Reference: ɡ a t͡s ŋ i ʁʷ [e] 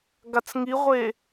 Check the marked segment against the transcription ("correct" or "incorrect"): correct